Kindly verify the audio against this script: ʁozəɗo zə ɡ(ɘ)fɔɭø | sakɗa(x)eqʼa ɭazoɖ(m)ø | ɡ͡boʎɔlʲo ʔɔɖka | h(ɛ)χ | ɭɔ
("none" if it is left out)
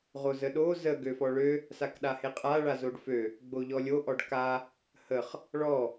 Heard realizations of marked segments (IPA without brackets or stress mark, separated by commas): ø, h, f, ə